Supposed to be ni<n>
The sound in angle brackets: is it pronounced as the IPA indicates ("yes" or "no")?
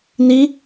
no